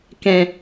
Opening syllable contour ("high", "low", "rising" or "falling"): low